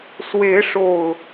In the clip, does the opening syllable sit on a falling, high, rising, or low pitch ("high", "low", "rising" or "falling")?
rising